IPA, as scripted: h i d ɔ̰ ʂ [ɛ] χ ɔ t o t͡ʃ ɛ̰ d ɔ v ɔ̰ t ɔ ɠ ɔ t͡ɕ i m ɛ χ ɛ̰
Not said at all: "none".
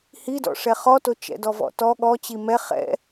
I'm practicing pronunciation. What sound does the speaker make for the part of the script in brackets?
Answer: ɛ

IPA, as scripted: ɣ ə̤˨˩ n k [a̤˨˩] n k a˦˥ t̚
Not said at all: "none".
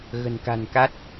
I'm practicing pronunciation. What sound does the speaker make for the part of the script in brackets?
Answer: a̤˨˩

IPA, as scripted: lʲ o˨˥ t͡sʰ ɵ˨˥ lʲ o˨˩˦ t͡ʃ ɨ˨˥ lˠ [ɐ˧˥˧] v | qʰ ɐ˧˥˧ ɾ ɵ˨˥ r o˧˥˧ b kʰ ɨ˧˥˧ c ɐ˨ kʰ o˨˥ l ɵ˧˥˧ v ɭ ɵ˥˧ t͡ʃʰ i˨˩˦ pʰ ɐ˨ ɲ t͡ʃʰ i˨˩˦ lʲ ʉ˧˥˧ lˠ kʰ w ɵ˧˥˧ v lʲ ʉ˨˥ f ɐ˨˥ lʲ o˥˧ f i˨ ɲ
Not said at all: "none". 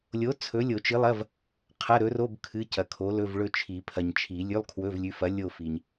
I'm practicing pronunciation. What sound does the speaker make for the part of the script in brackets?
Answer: ɐ˧˥˧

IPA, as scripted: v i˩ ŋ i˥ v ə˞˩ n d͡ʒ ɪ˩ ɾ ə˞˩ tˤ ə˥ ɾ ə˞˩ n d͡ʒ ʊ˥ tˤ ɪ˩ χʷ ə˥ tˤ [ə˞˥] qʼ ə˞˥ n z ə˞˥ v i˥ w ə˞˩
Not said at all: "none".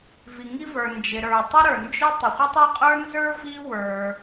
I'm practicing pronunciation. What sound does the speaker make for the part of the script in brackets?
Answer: ə˞˥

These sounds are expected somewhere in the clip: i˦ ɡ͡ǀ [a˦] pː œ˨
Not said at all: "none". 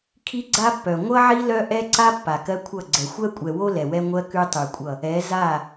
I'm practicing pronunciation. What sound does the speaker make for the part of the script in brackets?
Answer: a˦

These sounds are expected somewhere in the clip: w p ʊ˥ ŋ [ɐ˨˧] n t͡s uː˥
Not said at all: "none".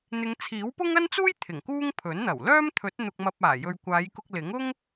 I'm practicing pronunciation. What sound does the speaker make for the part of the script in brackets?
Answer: ɐ˥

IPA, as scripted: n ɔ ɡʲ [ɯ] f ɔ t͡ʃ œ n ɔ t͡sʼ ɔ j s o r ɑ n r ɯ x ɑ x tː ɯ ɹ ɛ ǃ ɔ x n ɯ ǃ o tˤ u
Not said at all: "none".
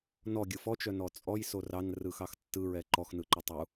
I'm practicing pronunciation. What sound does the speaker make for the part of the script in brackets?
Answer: ɯ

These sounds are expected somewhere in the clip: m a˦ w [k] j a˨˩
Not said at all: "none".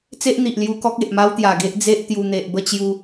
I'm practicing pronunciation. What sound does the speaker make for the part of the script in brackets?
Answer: t̪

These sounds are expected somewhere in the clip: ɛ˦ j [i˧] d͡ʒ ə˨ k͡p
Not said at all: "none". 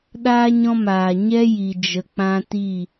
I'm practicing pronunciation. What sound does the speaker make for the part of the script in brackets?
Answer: i˨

